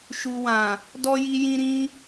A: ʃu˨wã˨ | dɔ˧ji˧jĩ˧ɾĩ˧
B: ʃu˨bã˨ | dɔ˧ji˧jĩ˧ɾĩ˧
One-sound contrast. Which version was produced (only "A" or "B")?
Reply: A